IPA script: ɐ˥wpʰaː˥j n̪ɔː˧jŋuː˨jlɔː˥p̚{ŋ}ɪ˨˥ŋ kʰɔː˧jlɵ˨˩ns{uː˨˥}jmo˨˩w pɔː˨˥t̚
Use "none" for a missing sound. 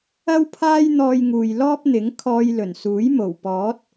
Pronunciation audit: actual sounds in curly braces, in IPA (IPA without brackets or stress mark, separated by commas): n̪, uː˨˥